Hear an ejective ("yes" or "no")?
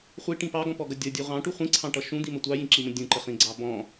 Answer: no